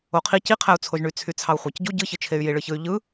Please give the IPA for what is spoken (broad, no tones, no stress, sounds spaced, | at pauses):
o qʰ i c i qʰ æ u̯ t͡sʰ o ʒ ɳ y t͡sʰ y t͡sʰ ɑ u̯ χʷ æ c ɟ u ɟ ɯ ç ɯ t͡ʃʰ e y̯ j i ɭ ɯ ç ɯ y̯ ʎ ɯ